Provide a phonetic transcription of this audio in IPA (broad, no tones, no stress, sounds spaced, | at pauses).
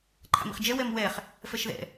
ǃʰ a̰ m ḭ χ d͡ʒ ɛ w ɛ m w ɛ χ | f ɛ ʃ ð ɛ̰